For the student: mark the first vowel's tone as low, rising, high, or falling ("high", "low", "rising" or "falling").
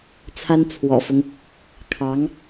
high